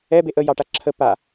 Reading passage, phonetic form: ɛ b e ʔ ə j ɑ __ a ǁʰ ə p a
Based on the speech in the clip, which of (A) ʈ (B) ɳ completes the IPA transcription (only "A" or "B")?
A